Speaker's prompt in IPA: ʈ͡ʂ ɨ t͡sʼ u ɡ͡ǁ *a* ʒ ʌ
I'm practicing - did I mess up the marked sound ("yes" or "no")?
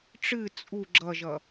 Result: yes